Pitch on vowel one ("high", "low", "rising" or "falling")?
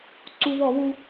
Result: high